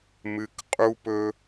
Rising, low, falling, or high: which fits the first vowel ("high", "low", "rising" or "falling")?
high